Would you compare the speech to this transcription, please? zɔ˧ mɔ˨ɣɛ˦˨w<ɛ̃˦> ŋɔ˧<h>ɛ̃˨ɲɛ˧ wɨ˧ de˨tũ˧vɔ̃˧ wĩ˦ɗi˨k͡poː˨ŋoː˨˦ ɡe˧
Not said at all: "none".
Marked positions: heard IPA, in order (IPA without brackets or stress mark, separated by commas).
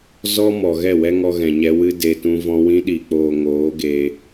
ɛ˦, ɣ